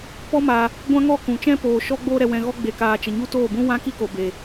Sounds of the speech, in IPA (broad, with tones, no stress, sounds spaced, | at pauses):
p ɔ˦ m a˧ | ɡʷ ã˦ ŋ ɔ˦˨ k ũ˨ t͡ʃ ɛ̃˦ p oː˨ ʃ ɔ˦ ɡ͡b oː˦ ɾ ɛ˧ w ɛ̃˧ ɣ ɔ˦ ɡ͡b e˧ k aː˧ t͡ʃ ə˨ ɲ u˦ t oː˦˨ b ũ˦ w ã˦ k i˦ k o˨ b e˨